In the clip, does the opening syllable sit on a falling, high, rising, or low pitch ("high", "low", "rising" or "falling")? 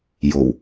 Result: low